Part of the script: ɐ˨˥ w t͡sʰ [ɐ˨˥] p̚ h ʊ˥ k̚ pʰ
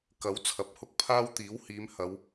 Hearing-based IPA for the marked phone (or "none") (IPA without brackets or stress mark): ɐ˨˥